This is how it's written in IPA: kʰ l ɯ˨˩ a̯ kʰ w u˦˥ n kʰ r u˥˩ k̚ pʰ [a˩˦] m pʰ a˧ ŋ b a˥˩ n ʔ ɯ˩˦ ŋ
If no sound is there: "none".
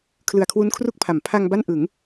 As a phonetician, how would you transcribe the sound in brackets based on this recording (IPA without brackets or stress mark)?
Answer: a˩˦